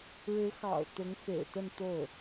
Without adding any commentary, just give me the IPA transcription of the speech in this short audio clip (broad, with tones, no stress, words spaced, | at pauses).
ɻɻ̩˧˥xɑ̰˨˩ʊ̯ t̪ʊ˧˥ŋfḛ˨˩ɪ̯t̪ə˥˧n t̪o˥˩ʊ̯